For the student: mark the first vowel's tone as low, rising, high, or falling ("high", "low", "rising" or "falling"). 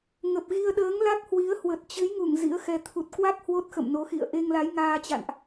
low